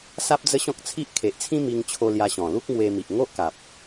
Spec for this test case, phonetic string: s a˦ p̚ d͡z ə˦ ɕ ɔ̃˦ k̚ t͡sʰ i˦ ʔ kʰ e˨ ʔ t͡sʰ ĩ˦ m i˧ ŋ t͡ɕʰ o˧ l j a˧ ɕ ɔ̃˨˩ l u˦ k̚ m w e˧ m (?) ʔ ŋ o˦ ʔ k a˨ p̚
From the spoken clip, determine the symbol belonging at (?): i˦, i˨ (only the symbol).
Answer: i˨